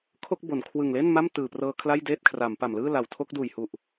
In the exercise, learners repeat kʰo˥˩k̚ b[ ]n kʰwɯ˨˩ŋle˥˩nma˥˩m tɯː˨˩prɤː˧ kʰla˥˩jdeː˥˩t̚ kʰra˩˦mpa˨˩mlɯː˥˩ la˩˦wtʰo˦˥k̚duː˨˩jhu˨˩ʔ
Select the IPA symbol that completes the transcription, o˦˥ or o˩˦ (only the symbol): o˩˦